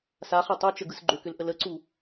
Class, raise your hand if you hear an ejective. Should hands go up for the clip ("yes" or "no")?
no